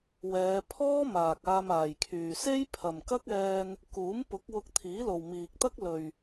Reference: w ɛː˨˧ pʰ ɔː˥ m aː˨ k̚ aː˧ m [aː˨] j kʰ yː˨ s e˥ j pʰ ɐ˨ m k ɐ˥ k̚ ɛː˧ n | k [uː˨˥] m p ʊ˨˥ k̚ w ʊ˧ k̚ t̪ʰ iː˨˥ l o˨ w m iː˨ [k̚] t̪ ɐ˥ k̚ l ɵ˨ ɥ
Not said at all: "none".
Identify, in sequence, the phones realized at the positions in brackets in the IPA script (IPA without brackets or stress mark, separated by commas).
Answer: aː˨, uː˨˥, k̚